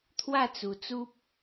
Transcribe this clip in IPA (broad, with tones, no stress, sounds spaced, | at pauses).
t̪ʰ w a˥˧ t͡s u˨˩ t͡s u˦ p̚